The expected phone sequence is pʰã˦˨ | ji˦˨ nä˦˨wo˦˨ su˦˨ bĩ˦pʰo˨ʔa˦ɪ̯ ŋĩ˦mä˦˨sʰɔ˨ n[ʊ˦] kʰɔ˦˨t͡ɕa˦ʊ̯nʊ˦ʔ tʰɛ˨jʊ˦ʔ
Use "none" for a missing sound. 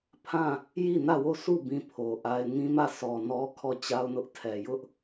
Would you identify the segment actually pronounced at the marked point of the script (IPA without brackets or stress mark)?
ɔ˦